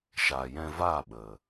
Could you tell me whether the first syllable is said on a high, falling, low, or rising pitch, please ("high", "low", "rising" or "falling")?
low